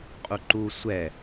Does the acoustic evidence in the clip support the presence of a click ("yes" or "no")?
yes